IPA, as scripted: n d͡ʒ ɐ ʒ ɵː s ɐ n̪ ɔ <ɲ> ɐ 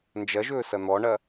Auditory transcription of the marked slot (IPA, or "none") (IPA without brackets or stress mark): ɳ